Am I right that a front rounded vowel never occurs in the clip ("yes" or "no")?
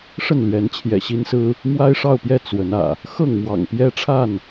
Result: yes